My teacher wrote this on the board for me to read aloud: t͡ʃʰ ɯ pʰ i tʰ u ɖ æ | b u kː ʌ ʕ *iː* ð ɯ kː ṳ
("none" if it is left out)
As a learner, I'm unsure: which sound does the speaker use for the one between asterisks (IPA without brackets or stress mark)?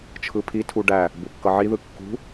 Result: i